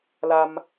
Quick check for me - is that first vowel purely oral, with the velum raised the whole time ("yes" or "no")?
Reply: yes